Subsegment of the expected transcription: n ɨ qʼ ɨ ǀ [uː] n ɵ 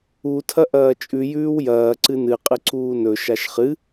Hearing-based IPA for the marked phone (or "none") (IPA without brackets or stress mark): uː